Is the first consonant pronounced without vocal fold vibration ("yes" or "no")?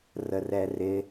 no